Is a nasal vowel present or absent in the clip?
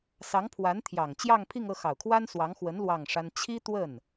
absent